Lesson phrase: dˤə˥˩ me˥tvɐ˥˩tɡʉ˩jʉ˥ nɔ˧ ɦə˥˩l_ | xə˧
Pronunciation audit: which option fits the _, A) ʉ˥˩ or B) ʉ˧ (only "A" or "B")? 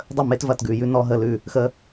A